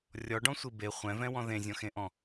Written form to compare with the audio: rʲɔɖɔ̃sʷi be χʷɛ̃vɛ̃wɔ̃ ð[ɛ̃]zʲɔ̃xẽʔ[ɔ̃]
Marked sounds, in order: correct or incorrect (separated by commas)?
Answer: incorrect, correct